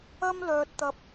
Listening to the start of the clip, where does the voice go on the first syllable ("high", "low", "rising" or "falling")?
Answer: high